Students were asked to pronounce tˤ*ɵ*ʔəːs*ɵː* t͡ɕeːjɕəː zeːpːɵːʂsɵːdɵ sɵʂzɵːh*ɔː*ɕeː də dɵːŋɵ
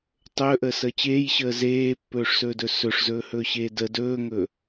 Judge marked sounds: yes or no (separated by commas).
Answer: no, no, no